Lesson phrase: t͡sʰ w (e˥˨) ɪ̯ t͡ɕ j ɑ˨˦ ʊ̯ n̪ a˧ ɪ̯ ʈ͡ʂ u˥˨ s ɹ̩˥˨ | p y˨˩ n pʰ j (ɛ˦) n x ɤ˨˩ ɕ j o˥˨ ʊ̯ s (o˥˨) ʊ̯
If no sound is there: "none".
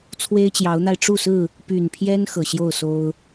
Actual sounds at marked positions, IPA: e˦, ɛ˦, o˦

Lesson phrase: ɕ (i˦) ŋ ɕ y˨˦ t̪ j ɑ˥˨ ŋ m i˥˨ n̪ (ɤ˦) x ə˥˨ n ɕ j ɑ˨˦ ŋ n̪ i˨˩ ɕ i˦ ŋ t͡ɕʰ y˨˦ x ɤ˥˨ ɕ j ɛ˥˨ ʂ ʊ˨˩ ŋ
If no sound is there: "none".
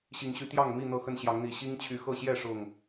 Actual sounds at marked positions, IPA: i˨˦, ɤ˥˨

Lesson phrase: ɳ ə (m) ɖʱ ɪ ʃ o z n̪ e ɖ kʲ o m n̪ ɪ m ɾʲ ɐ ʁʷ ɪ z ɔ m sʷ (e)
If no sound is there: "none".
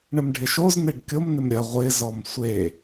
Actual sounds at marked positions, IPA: m, e

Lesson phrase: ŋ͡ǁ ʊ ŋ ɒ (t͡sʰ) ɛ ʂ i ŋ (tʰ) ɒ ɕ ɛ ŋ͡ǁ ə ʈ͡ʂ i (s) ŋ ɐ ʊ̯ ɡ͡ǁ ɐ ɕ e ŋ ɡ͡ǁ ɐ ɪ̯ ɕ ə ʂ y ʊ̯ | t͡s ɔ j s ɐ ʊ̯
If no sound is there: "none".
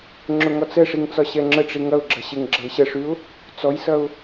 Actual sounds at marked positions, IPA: t͡s, t͡s, none

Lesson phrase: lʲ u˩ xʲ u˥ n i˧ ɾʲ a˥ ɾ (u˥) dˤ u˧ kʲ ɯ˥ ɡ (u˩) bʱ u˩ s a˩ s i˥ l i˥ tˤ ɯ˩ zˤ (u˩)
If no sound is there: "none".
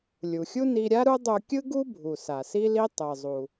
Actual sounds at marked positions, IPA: u˥, u˥, u˩

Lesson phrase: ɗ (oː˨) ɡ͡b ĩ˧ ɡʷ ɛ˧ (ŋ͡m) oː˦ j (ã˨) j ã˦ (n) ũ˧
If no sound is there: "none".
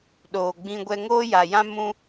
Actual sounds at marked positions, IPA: oː˨, ŋ, a˨, m

